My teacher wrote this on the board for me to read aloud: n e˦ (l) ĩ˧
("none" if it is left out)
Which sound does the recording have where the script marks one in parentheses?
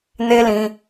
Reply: l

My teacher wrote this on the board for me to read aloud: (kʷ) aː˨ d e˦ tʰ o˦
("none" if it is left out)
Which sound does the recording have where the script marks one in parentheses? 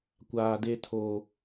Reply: kʷ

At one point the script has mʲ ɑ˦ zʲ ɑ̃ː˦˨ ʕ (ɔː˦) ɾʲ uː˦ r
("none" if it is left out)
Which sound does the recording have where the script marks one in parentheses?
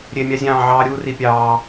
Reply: ɑː˦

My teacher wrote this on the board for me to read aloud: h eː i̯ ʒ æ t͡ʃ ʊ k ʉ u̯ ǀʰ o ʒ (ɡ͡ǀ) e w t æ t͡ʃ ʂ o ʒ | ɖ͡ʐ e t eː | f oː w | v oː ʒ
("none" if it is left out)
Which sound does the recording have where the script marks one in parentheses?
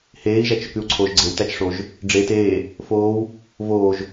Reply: ɡ͡ǀ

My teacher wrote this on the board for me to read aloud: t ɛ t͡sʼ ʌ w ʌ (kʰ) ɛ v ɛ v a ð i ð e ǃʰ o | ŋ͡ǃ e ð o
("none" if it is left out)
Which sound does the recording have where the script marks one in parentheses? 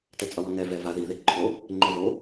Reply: ŋ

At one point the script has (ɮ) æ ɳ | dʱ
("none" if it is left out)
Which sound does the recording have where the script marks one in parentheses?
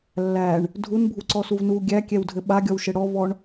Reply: lː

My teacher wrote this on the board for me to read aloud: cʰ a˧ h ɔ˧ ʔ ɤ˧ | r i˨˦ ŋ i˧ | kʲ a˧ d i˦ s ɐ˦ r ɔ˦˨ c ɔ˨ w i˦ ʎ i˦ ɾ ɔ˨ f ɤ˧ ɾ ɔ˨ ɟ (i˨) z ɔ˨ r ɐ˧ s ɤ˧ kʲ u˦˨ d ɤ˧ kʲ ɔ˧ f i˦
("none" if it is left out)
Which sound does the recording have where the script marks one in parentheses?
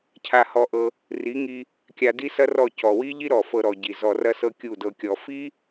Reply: i˨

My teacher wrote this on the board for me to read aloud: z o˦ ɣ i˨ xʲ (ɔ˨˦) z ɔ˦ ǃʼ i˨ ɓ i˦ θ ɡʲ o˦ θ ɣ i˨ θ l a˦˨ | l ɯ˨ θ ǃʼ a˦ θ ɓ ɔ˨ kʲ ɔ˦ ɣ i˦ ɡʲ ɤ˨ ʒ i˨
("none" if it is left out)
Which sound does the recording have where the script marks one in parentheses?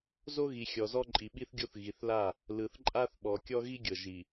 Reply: ɔ˨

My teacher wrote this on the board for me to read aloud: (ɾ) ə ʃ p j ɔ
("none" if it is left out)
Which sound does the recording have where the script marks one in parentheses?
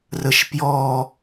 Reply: r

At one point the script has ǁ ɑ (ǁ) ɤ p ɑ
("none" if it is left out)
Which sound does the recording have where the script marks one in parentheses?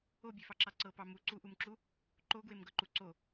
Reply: ǀ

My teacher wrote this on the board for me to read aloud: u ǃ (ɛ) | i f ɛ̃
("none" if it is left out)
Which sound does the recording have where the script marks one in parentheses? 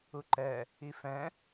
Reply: ɛ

